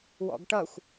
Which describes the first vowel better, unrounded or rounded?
rounded